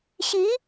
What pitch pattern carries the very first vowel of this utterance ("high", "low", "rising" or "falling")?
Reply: rising